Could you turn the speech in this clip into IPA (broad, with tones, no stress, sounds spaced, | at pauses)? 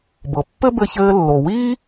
b ɤ˩ pː ɘ˥ b ɘ˧ ç ɘː˧ lː o˩ w iː˥